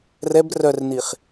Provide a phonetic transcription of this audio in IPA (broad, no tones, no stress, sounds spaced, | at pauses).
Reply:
r ɛ b r œ r n i χ